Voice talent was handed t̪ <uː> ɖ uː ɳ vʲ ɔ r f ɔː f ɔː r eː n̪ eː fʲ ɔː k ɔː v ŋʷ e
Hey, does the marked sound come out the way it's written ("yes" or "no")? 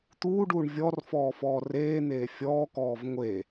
yes